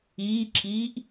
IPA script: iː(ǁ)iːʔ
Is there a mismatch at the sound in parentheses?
no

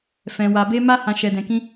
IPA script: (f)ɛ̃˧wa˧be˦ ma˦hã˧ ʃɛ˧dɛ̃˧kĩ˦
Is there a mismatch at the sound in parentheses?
no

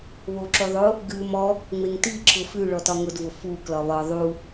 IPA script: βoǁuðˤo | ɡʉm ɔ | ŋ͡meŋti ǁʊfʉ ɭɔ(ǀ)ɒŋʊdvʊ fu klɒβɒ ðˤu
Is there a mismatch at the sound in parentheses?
yes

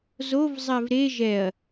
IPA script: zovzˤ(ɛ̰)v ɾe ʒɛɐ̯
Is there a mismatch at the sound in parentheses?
yes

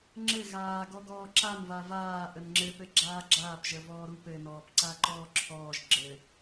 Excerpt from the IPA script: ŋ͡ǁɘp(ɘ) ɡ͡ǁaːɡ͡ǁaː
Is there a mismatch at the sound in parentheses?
no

